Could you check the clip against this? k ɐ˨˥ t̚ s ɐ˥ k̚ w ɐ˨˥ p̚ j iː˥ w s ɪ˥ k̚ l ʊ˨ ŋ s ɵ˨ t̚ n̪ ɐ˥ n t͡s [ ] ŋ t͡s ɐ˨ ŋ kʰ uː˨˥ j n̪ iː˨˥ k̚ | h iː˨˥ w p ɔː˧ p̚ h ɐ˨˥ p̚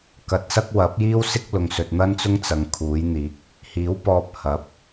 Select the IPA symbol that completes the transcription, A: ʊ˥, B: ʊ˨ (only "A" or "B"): A